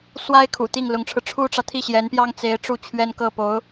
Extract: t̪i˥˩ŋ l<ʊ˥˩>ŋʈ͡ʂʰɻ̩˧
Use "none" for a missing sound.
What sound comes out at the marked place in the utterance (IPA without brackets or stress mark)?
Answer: ʊ˧˥